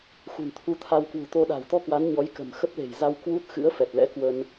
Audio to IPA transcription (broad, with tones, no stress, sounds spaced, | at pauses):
x ṳ˨˩ n t̪ʰ u˧ t̪ʰ a˧ w k w ṳ˨˩ t̪ o˧ ɗ a̤˨˩ w t̪ ɔ˧ k w a˨˦ n ɲ ɔ˨˦ j k ə̤˨˩ m x ə˦˥ p̚ l e̤˨˩ j z a˧ w k w u˦˥ t̚ x ɨ̰˧˥ ə̯ f ɛ˨˩ t̚ l ɛ̰˧˥ k w ə˧ n